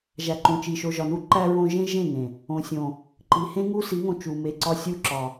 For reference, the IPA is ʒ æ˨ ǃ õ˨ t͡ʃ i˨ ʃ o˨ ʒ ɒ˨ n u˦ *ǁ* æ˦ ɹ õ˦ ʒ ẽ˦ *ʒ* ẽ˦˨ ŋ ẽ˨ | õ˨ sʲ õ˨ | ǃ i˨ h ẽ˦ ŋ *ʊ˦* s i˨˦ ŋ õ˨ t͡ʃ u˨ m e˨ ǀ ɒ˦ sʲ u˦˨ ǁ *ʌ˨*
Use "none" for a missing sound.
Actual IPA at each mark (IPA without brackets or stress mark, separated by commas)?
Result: ǃ, ʒ, u˦, ɒ˨